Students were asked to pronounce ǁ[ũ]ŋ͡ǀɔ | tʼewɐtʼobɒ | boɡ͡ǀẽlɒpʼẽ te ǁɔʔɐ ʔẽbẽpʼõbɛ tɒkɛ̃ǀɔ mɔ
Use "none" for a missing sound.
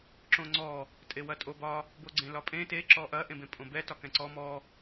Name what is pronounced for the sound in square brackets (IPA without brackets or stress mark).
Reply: õ